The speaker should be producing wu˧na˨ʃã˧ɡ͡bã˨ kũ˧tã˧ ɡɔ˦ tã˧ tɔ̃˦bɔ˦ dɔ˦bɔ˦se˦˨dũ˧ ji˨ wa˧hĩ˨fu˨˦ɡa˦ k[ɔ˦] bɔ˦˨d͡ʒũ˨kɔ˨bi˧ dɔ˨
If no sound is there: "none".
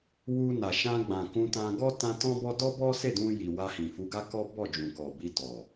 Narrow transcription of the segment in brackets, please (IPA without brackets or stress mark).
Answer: ɔ˦